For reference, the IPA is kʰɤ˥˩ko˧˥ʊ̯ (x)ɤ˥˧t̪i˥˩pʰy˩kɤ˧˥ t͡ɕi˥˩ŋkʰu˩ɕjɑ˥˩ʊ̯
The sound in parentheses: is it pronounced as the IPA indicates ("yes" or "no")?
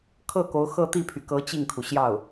yes